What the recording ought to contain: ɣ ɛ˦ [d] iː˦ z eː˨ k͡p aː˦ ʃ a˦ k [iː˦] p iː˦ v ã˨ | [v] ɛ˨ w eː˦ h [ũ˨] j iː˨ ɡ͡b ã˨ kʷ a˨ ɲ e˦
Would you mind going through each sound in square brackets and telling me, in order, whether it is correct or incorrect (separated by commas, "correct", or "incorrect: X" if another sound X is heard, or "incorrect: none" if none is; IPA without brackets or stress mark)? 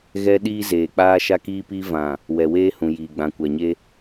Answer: incorrect: ɗ, correct, incorrect: w, correct